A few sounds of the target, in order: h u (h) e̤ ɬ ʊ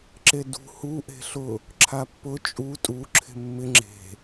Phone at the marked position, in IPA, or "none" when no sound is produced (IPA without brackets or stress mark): ʔ